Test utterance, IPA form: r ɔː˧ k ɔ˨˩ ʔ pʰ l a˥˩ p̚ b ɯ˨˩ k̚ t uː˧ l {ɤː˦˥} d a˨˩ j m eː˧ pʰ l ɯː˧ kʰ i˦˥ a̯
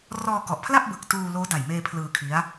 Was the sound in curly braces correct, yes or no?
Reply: no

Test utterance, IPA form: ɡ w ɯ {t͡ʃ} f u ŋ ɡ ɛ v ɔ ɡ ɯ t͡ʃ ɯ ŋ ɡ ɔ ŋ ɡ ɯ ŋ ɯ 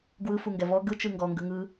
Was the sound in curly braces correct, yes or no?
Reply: no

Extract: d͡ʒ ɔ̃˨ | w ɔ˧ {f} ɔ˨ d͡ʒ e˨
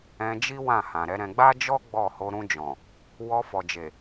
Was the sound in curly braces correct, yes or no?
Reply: yes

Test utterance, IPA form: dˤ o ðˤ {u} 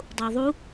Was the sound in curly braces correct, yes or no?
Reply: yes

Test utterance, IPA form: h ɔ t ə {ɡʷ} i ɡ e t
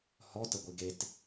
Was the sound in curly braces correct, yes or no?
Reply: yes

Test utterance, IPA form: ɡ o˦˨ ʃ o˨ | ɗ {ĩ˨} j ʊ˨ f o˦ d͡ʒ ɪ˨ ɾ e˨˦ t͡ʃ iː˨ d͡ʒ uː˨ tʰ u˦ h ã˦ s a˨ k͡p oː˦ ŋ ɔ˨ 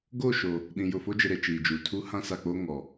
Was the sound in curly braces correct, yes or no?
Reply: yes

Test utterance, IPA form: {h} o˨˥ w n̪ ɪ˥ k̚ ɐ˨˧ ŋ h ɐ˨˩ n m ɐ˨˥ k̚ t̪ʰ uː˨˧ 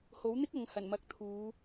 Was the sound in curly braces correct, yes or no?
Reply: yes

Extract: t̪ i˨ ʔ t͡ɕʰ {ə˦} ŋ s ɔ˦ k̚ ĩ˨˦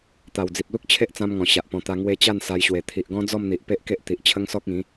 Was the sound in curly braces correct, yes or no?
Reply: yes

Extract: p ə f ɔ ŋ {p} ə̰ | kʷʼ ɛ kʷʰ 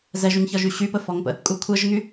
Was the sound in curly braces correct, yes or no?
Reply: yes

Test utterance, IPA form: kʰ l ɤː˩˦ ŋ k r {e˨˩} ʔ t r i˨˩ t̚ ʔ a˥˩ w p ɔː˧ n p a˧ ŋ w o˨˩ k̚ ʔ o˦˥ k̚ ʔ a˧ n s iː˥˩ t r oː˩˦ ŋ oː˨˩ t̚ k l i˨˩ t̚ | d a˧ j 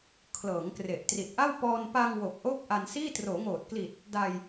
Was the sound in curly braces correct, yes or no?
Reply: yes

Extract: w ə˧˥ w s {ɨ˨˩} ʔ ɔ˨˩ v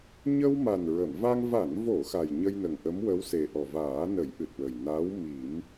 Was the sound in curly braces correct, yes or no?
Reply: no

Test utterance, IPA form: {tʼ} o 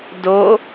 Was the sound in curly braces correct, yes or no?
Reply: no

